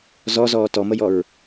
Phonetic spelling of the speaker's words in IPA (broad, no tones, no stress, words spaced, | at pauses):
zɔzɔː tɔməjɔɹ